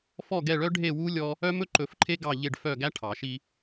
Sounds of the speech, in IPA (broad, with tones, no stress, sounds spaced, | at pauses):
f ɔ˦˨ ɡ ɛ˦˨ ɭ œ˦ ɖʱ e˦˨ w u˦ lʲ ɔ˦ | œ˦ m ɵ˦ ǃ ɵ˨˩˦ f ǃʰ e˦ ɡ ɑ˦˨ ʎ e˦˨ ɖ f œ˦˨ ɡ æ˦ ʈʰ ɑ˨˩˦ ʃ i˦